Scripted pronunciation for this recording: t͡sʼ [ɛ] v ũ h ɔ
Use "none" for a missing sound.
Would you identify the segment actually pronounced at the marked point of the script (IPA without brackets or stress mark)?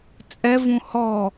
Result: ɛ